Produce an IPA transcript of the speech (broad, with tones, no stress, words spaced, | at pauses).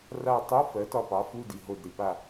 ra˦˨ tˤo˧˥˧ fɜ˨˥tɒ˦˨pɑ˨˥fu˧˥˧ di˨ɦo˦˨dɾi˨ pa˦˨